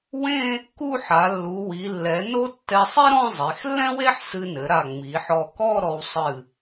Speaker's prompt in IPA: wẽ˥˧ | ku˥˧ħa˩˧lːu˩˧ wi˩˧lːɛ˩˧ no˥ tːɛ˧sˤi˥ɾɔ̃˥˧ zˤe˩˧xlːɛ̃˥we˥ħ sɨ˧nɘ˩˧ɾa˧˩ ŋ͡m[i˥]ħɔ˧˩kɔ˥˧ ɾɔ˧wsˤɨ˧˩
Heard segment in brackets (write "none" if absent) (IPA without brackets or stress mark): i˩˧